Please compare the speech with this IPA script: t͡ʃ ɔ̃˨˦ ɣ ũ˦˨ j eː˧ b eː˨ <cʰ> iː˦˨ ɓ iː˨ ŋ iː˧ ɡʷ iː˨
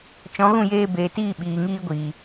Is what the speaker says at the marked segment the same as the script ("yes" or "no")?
no